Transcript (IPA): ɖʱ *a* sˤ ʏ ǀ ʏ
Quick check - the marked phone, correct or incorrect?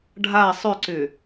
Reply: correct